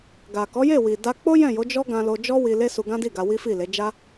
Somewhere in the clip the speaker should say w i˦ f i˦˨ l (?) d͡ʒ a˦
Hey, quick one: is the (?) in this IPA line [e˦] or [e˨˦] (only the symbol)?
e˨˦